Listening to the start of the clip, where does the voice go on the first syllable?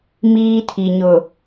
high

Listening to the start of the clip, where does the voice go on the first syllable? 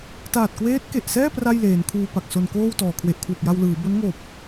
low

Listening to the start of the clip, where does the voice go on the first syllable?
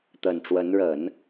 low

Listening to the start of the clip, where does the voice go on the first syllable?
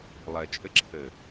low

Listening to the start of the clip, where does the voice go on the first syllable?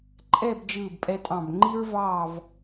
falling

